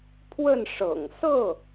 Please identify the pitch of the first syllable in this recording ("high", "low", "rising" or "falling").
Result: falling